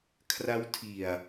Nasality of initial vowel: oral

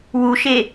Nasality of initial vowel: oral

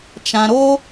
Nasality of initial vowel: nasal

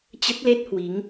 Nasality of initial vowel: oral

